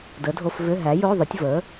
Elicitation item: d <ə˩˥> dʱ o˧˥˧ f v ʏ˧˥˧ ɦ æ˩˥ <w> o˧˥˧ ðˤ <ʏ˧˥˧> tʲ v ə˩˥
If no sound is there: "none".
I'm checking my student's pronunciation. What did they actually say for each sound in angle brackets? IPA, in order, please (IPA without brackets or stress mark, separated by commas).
ə˩˥, j, ʏ˩˥